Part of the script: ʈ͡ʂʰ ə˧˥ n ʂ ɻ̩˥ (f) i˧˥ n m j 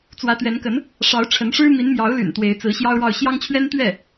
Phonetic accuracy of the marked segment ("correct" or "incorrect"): incorrect